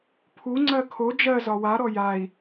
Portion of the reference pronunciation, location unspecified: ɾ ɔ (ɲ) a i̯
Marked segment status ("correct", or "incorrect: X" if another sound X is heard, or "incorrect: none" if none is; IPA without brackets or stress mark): incorrect: j